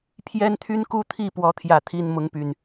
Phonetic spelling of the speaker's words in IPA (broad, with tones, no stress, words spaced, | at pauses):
pʰjɛ˦nt̪ʰy˦nku˦t̪ʰi˥˨ pwɔ˦t̪ʰjä˥˨t̪ʰi˦n mʊ˨˦ŋpy˨˩n